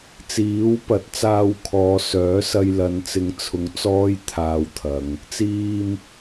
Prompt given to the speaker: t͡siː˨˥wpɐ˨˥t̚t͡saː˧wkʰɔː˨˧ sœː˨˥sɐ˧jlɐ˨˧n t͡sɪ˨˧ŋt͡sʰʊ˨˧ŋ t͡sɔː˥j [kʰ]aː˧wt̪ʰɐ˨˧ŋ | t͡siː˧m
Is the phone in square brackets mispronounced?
yes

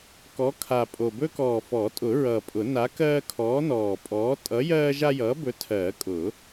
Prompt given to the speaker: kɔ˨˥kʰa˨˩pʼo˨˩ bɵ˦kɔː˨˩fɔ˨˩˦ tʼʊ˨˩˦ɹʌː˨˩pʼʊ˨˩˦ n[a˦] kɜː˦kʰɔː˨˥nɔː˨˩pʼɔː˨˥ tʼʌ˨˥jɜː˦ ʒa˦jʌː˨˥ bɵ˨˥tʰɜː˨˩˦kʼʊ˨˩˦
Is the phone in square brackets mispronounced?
yes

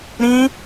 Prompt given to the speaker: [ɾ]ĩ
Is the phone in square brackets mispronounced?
no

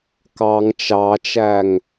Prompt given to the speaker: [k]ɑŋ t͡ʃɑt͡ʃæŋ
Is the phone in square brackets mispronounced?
no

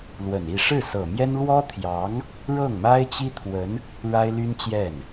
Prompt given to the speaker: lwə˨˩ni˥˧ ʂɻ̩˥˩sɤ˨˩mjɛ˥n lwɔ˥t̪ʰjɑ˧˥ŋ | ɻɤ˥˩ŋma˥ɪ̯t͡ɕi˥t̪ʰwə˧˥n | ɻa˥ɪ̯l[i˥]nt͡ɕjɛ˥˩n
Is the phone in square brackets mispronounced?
yes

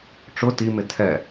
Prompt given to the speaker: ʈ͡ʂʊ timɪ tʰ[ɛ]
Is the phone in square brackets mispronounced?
no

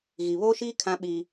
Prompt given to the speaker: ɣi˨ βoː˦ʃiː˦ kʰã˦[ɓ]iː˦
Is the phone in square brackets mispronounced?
no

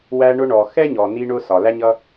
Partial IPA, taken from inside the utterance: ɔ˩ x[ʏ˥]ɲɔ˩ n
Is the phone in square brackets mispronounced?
yes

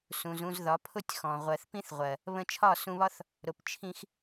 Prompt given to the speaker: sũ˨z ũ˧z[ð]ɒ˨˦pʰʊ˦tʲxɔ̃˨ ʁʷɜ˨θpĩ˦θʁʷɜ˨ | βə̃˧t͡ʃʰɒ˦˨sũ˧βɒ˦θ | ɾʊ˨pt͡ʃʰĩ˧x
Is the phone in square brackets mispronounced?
no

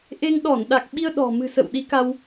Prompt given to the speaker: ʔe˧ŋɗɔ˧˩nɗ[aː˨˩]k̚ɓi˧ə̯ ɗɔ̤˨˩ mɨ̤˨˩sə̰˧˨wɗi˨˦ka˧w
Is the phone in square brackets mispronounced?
yes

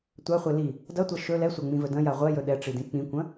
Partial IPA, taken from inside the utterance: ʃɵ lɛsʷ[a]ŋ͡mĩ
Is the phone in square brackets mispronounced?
no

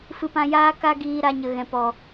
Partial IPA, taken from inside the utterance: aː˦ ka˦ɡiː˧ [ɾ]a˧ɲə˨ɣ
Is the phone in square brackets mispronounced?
no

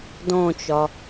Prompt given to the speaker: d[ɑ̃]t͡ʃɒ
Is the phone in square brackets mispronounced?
yes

